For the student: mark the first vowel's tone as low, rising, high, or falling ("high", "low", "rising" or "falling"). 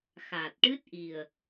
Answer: low